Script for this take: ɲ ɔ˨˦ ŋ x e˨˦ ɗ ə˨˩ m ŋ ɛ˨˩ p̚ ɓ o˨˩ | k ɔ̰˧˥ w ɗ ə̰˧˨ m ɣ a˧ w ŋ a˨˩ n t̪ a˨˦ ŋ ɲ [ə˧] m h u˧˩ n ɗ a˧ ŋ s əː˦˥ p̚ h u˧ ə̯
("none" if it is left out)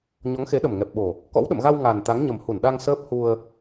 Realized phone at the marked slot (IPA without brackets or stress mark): ə˨˩